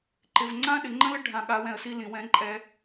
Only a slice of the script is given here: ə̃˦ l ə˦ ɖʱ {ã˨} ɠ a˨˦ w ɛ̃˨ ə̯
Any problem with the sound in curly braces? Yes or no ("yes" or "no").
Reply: no